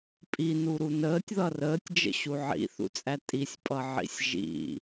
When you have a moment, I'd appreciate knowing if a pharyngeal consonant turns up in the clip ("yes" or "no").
yes